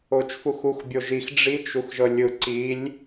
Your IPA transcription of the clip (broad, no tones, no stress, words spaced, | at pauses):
ot͡ʃfuxux bʲoʒix ɖ͡ʐit͡ʃ uxʒɤlʲɯ ǀilʲ